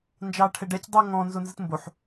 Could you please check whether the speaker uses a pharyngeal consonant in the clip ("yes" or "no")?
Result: yes